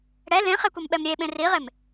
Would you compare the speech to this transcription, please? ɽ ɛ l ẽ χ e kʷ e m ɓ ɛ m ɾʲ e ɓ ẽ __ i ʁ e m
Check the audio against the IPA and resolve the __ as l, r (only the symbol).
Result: r